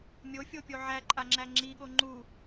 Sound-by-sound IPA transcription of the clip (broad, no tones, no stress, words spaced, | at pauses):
mʲofʲopʲo ʕæǃʼaŋ͡ǁæ ŋ͡ǁiɠo ŋ͡ǃu